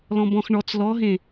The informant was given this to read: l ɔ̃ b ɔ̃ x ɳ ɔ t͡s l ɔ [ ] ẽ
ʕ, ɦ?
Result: ɦ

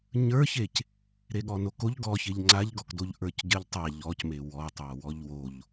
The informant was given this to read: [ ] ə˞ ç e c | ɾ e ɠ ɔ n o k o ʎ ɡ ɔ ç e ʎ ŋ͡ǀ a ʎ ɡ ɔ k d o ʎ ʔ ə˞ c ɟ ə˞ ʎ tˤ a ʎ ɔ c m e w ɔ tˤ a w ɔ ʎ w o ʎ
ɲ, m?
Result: ɲ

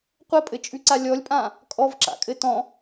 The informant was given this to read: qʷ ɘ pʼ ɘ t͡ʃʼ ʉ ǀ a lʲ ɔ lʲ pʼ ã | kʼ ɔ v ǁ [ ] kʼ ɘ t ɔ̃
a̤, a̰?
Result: a̰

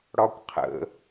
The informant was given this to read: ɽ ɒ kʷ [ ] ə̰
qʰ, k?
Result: qʰ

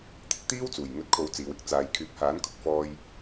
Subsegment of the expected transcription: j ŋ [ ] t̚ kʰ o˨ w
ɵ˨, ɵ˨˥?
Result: ɵ˨˥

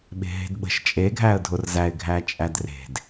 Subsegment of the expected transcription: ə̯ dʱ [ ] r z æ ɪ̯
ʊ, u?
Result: ʊ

